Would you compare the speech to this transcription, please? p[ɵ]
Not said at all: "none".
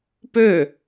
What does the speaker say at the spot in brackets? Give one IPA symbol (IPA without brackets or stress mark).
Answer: ø